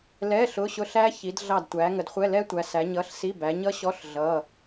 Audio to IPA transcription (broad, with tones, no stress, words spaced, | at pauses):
lɛ˧˥˧ ɬʊ˧˥˧ɕʊ˦˨ ɬæ˦˥çi˨˦d ɮɑ˦˨dtʷæ˨˦ ŋə˨˦dχʷɛ˧˥˧lɛ˦˥tʷæ˨˦ sæ˨˦ɲʌ˧˥˧ɬsi˧˥˧ bæ˨˦ɲʌ˦˥ ɕɔ˧˥˧ɬ ɮʌ˧˥˧